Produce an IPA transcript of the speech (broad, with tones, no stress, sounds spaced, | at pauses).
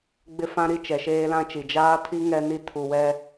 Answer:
ɡ͡b ɪ˦ f ã˦ ɾ i˦ t͡ʃ ɛ˨ ʃ eː˦ l ã˦ t͡ʃ i˨ d͡ʒ aː˦ tʰ i˦ ŋ ɛ˦ n i˦ tʰ u˨ w ɛ˦